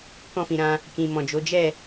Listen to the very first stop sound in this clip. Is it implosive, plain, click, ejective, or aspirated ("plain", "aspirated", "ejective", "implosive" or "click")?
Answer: plain